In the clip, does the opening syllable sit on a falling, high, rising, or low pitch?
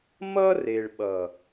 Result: high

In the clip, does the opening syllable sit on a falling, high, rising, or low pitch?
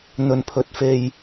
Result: low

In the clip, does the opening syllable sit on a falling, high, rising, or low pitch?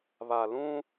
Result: low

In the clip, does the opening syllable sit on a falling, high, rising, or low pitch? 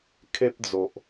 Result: high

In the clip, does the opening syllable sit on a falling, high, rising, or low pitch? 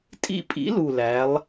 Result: falling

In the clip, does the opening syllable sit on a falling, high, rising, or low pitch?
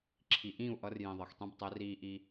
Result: low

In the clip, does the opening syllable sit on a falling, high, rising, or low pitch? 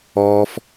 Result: high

